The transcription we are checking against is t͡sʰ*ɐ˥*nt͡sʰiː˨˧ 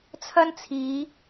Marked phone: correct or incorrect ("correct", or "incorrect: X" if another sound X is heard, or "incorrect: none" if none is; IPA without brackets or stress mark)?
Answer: correct